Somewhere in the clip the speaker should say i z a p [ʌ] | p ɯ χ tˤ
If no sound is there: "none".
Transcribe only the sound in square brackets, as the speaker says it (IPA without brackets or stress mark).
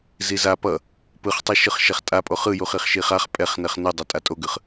ʌ